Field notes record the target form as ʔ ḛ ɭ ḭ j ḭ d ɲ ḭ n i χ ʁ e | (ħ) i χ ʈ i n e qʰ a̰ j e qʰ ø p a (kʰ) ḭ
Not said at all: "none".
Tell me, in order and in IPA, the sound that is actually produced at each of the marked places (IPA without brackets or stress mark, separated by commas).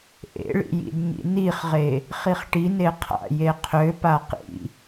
χ, q